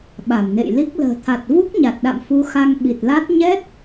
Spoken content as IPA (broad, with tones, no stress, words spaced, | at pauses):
ɓa˧˩mnḛ˧˨j li˦˥k̚ lə̤ː˨˩t̪ʰa˨˩t̚ vu˦˥k̚ɲa˨˩t̚ɗa̰˧˨m fu˧xa˧ŋ ɓi˨˩t̚la˦˥t̚ ɲɛ˦˥t̚